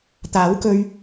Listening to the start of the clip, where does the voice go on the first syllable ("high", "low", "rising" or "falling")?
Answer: rising